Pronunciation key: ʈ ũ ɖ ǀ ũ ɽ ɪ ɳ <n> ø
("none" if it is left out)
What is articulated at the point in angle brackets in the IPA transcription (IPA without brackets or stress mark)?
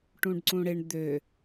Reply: d̪